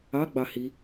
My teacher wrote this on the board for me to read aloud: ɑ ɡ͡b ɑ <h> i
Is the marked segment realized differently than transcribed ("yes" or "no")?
no